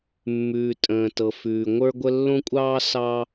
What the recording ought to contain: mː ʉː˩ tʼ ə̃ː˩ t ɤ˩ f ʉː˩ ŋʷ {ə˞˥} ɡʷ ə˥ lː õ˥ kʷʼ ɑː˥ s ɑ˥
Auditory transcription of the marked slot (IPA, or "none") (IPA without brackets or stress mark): ə˞˥